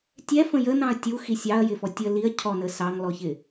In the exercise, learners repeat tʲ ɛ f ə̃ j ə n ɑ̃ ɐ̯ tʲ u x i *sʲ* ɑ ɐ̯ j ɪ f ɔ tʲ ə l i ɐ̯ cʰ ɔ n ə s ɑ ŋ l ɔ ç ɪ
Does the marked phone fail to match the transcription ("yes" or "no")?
no